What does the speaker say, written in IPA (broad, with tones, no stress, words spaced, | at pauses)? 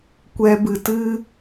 kʷɛ˧bɨ˨ tɨ˦